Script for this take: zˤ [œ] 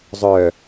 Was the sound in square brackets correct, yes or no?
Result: yes